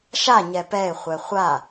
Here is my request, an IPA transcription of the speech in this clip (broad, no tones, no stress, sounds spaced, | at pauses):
ʃ a ɲ ɛ p ɛ ɪ̯ χʷ ɛ χʷ a